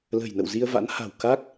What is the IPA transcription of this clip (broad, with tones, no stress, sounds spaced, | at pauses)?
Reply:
l ə̤˨˩ j n ə̰˧˨ w z i˧ ə̯ v a̰˧˥ n h a̤˨˩ w k a˦˥ k̚